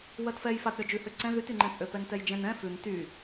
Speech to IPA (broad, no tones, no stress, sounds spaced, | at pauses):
w ɜ t f ɛ j f a t ɾʲ ɔ d͡ʒ ʉ h ø ǀ ɛ̃ ð y t y ŋ͡ǃ ɛ̃ t͡sʼ ø p ɛ n t ɛ j d͡ʒ ɛ̃ n ɛ̃ f ʉ n t y